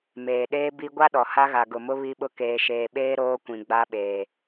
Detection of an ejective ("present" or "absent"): absent